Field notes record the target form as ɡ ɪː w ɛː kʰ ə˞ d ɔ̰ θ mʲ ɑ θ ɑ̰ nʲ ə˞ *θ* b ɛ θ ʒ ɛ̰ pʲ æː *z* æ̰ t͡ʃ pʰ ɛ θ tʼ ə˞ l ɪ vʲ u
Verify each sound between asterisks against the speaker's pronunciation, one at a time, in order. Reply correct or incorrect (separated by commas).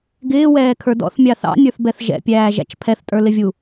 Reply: correct, incorrect